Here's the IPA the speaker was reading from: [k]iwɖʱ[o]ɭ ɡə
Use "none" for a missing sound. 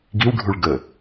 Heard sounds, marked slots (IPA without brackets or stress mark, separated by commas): ɡ, u